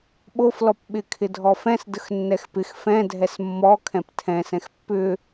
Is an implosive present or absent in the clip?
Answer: present